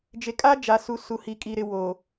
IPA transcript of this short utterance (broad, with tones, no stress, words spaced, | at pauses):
d͡ʒe˨˦kʼa˦ d͡ʒa˨su˨ su˨hi˨kʼi˨ɾɪ˨ wo˨